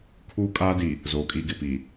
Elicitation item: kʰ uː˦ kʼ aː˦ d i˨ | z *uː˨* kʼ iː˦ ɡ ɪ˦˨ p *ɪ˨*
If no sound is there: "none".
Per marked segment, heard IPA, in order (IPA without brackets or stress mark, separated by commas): oː˨, i˨